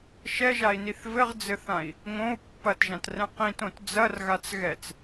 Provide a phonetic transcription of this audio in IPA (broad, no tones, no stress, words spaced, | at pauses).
ʃɛʒai̯niθ vɘʁd͡zɘθãi̯ | ŋõu̯ pːɐtʒãtrɛ̃ qĩtõt d͡zɐrɣat͡s ɣɛt͡s